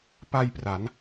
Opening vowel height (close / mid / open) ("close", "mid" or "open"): open